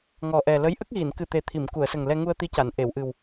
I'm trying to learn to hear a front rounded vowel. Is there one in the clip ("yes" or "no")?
no